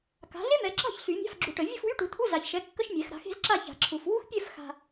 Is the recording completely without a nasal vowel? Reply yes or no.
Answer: yes